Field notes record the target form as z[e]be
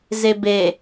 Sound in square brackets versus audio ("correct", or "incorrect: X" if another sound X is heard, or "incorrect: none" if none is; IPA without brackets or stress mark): correct